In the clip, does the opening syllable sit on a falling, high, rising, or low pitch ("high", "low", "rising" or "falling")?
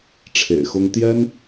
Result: low